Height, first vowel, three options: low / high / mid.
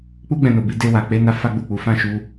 high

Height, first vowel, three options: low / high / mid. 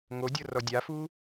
mid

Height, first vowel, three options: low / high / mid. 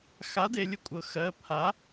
low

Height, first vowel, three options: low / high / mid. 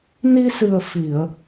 high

